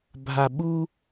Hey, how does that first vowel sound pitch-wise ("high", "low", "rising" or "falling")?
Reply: low